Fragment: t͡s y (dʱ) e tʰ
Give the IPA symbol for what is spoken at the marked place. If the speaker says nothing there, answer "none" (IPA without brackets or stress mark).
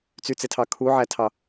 t͡s